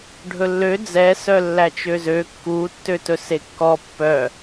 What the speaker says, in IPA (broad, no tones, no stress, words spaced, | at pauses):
ɖʱɵlːø d͡zɛ sœlːæt͡ʃøzø kːutːøtɵ sekːɔ pːœ